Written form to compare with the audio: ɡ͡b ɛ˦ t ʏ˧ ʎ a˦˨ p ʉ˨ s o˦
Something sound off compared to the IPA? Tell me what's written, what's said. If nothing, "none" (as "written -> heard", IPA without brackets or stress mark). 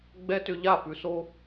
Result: none